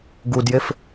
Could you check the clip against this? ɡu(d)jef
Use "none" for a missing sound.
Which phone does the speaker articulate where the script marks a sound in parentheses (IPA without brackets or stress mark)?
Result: d